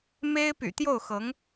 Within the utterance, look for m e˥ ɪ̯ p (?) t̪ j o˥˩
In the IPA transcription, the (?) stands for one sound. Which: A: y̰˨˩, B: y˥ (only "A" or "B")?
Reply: A